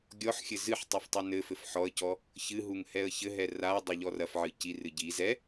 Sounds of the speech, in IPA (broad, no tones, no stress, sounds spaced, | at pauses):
ɡʲ ɔ ħ xʲ ɘ z ɨ ħ tˤ u f tˤ ɨ n ɘ f ɘ f ħ ɔ ə̯ c ɔ | ç ɨ ɦ u ŋ h ɛ ə̯ ç ɘ ɦ ɛ r a ə̯ dˤ ɘ ʎ ɔ r ɐ f ʕ ɨ c i r ɨ ɟ i z ɛ